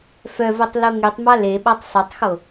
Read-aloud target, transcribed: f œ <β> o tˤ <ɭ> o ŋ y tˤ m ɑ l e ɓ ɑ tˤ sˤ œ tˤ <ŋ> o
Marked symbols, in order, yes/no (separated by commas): no, no, no